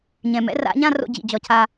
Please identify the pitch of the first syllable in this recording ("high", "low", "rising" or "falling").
low